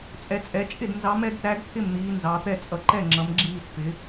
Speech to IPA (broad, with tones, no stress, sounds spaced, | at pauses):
t͡sʼ ɛ˨˦ t͡sʼ ɛ˨˦ t͡ʃʼ ɪ˥˨ d n z ɑ˨˦ m ɛ˨˦ ɡ t æ˨˦ ɡ t̪ʰ ɪ˥˨ m n̪ iː˨˦ n z ɑ˨˦ t̪ ɛ˥˨ t͡sʼ ʌ˨˦ ǃ ɛ˥˨ ŋ͡ǁ ʌ˨˦ m ɡ͡ǁ iː˥˨ t f ɪ˨˦